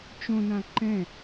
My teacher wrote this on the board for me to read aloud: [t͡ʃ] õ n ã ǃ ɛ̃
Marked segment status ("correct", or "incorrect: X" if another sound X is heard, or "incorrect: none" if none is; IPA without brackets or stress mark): correct